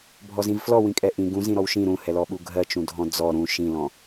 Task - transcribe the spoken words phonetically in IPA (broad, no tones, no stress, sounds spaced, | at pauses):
bʱ ɔ z ĩ v f l ɔ w ĩ kʼ ɛ ʔ ĩ ɡ ũ z ĩ ɾ ɔ w ʃ ĩ ɾ ũ h ɛ l ɔ ɓ u ɡʱ ɜ t͡ʃ ũ dʱ ɔ̃ d͡z ɔ ɾ ũ ʃ ĩ l ɔ̃